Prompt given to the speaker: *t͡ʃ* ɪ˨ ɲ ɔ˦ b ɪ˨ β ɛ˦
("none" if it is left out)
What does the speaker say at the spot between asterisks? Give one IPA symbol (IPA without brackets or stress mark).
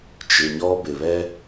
t͡ʃ